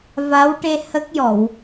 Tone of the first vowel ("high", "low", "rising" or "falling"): rising